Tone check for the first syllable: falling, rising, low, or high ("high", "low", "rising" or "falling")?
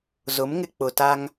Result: rising